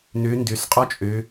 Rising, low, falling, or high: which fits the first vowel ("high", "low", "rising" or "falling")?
rising